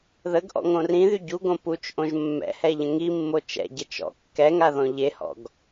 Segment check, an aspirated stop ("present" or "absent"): absent